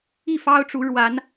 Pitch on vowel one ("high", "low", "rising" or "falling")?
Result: falling